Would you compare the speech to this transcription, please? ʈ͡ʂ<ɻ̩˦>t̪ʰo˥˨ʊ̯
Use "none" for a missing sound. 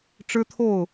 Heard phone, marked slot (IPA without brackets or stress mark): ɻ̩˦